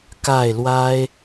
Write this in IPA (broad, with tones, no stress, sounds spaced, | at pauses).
k a˥˩ ɪ̯ l w a˥ ɪ̯